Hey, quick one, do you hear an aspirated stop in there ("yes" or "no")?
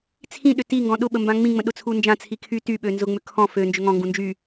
yes